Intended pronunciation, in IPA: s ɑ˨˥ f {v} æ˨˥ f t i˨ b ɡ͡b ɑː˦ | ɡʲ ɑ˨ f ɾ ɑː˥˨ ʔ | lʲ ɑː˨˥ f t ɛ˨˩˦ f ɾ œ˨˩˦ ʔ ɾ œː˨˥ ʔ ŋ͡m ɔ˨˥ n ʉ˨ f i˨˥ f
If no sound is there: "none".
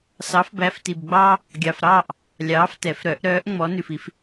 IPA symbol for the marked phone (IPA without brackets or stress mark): b